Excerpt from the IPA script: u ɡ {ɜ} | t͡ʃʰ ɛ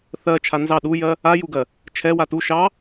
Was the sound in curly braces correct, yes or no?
yes